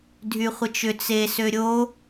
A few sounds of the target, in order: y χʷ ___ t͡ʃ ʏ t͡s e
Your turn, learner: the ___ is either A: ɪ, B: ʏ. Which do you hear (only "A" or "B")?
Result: A